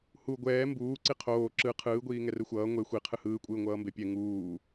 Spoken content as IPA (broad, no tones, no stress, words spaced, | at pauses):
hu ɡʷɛː mbuː ǀiqʰoː ǁɯ qʰɯːɡʷiː ŋɛrɯxʷʌː ŋʷe xʷi qʰɯhɯːkʷʼɯː ŋʷʌːmbepʲɛ ŋuː